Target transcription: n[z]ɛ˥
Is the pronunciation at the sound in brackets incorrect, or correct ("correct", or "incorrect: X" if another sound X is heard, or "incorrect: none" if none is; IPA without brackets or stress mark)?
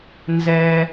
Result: correct